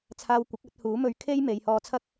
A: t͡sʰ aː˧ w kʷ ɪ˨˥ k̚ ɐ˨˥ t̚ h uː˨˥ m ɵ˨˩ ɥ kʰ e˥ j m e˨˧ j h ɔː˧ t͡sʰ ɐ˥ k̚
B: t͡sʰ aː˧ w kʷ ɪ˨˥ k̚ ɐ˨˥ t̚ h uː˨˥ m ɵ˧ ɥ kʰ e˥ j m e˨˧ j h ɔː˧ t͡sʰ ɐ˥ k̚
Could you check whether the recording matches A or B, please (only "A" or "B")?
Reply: B